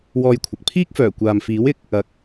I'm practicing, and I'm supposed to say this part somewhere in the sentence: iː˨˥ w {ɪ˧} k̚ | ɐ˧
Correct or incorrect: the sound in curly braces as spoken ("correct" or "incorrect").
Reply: incorrect